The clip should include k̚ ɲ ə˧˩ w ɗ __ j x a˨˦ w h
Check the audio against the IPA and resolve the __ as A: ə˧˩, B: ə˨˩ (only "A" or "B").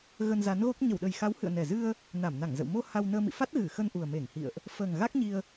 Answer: B